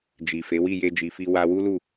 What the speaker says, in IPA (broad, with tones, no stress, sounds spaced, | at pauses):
d͡ʒ i˨ f e˨˦ w i˦˨ j e˧ d͡ʒ i˨ f i˧ w a˧ w u˦ l u˦˨